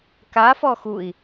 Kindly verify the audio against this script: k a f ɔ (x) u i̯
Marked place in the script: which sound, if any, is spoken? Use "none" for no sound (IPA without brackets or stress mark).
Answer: x